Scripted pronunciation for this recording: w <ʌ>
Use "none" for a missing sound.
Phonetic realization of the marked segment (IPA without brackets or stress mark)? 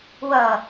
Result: ʌ